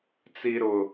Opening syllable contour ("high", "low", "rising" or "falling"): low